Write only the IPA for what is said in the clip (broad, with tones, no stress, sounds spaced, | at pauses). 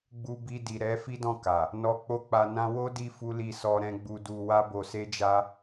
ɡ͡b u˧ b i˧ d i˨ ɾ ɛ˨˦ f i˦ d ɔ̃˦˨ k a˨ | n ɔ˧ k͡p o˦ k͡p a˧ n ã˦ w o˦ d i˧ f u˦ l i˦˨ s ɔ˧ ɾ ɛ̃˧ ɡ͡b u˧ d u˧ w a˦ b o˧ s e˦ d͡ʒ a˦